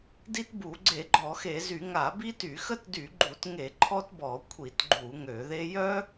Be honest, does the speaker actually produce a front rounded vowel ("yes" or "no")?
yes